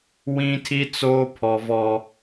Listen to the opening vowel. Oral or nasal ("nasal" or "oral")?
nasal